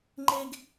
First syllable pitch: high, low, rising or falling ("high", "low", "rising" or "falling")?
high